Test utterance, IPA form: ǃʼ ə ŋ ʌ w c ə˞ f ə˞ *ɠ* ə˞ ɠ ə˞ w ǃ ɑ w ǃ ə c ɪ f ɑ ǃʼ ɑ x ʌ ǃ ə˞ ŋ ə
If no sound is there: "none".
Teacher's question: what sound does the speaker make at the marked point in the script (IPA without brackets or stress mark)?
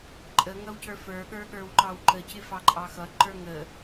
ɠ